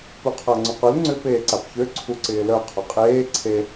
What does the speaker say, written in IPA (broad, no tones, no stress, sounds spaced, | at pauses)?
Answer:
p u qʰ a ŋ͡ǀ ʊ q ʊ l ŋ͡ǀ ʏ p eː ǀ a p ç ø ǀʰ u ǀ ɪː l œ qʰ ʊ qʼ eː ǀʰ e